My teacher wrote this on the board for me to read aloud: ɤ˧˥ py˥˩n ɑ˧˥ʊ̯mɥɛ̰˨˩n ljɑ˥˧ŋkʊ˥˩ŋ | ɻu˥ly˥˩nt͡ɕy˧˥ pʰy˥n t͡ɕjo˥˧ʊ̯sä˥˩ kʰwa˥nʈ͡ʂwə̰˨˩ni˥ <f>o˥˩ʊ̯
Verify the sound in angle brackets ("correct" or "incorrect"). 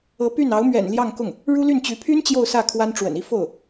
correct